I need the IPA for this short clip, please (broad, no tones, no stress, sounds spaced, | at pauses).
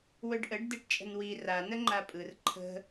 w ɵ ɖ ʔ ə ɖ d e ʈ t͡ʃʼ ə̤ n w i r a n ə ŋ͡ǃ a pʼ ɯ r ǃʰ ə̤